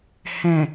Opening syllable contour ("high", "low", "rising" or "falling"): low